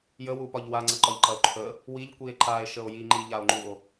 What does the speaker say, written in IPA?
j ə w u p ɒ ʎ w a ŋ͡ǀ ɐ ǃ ɒ ʎ ǃ ɐ o̯ ǃʰ ə | w i ʎ kʷ i e̯ ǃ a e̯ ʃ ə o̯ j i ŋ͡ǃ i ʎ a o̯ ŋ͡ǃ u o̯

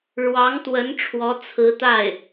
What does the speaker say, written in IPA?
ɻ w ɑ˧˥ ŋ t̪ w ə˧˥ n ʈ͡ʂʰ w ɔ˧˥ t͡sʰ ɹ̩˧˥ t̪ a˥˩ ɪ̯

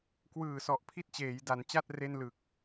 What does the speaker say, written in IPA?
k w ɯː˨˩ s ɔ˨˩ ʔ pʰ i˥˩ t̚ t͡ɕ eː˩˦ j d a˩˦ n t͡ɕ a˥˩ t̚ r e˥˩ n l ɯ˨˩ k̚

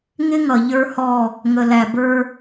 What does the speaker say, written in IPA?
ŋ ɪ˦ ŋ ʌ˨ ʎ ə˞˦ h ɔ˦˨ | ŋ ə˨ l æ˨ b ə˞˧

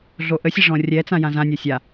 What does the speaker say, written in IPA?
ɮ o ʔ ə sʲ ə ʐ ɔ̃ rʲ ɛ t͡s ã j ã z ã nʲ o sʲ a

